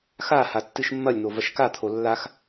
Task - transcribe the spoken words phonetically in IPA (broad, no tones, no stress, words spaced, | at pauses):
xaha tːɨʃmːɐlʲn̪o vɐʃkat̪ʰo lːax